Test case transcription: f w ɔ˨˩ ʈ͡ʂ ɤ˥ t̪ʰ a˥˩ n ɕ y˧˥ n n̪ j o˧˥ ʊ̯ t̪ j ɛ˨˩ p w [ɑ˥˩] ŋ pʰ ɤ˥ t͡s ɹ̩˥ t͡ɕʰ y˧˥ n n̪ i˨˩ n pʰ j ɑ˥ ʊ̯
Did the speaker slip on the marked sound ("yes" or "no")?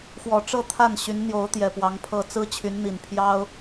yes